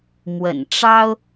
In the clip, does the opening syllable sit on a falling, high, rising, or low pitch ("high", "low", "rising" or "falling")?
low